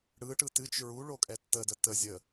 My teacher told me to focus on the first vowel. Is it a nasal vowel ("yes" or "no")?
no